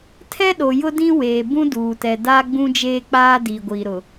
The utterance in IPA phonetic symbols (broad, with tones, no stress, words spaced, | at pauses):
tʰɛ˦ɗo˨jʊ˦ dĩ˦ weː˨bũ˦ duː˨tɛ˨ daː˦ɡ͡bũ˦d͡ʒeː˦k͡paː˦ diː˨ɡʷiː˨ɾʊ˨